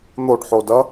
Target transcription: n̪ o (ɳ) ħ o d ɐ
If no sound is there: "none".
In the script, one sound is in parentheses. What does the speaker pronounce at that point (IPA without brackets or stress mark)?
ɖ